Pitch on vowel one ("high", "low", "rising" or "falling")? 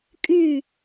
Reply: falling